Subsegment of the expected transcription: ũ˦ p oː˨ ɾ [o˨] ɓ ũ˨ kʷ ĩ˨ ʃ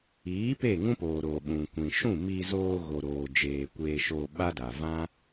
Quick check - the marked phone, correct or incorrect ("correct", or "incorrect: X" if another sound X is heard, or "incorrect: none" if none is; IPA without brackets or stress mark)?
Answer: correct